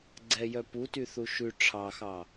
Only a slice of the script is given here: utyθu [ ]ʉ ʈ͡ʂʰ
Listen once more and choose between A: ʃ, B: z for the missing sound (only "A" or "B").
A